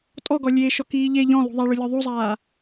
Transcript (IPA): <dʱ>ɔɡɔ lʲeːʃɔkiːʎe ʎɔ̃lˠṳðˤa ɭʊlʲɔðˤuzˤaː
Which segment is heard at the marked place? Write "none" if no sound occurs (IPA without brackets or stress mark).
tʼ